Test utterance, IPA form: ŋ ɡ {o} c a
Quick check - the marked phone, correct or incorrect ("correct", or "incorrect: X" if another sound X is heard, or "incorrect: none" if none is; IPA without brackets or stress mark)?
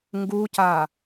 incorrect: u